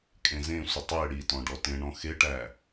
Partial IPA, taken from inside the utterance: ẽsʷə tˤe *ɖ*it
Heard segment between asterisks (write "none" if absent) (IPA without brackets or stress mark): ɽ